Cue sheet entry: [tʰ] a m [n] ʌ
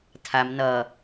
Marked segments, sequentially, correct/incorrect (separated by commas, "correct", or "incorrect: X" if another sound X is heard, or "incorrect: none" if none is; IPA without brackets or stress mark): correct, correct